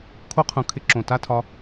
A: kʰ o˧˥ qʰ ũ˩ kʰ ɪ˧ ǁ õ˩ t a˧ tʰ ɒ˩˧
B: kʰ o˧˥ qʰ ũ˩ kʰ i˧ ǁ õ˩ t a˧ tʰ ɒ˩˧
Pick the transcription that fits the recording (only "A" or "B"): A